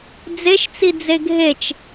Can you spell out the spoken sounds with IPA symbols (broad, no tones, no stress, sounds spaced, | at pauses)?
d͡z e ʃ t͡s i d͡z e ɡʱ e t͡ʃ